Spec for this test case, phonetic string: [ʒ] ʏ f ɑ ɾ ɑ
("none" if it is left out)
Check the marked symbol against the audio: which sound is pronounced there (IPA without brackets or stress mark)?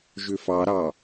ʒ